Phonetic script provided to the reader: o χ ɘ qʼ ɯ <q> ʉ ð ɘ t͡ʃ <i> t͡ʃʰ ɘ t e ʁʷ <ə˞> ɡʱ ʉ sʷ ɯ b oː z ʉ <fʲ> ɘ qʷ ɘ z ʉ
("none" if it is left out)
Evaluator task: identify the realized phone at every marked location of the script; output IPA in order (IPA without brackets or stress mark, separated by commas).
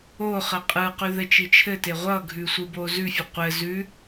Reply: q, i, ʌ, fʲ